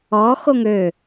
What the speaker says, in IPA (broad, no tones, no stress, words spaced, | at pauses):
ɔ xoŋø